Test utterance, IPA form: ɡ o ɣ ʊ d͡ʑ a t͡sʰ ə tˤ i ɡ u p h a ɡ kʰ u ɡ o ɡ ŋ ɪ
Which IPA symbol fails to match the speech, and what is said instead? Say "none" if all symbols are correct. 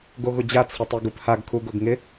ə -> ɪ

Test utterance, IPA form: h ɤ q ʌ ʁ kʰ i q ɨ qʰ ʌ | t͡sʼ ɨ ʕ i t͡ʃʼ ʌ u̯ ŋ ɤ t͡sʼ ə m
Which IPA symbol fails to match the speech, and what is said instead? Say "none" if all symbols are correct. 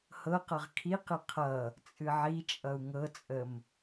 none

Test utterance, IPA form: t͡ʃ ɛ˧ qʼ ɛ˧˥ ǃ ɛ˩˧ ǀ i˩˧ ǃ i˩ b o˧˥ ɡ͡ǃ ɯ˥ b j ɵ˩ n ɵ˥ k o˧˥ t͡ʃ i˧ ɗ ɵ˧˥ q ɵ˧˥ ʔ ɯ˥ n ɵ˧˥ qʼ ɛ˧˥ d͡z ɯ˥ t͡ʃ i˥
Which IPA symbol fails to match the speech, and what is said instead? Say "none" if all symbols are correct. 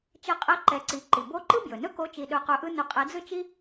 ɡ͡ǃ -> ǃ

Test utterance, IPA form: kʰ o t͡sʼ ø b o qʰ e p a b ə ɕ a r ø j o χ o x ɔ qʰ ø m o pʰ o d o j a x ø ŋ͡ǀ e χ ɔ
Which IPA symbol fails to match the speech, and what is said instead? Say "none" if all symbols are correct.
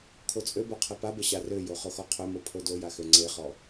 none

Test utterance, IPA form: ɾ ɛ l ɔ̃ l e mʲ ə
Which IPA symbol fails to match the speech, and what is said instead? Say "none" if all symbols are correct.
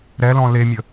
none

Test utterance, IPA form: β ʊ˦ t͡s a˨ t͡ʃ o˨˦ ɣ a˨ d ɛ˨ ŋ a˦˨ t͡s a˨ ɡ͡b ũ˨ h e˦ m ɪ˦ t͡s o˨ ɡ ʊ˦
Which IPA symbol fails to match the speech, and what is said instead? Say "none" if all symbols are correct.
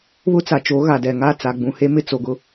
none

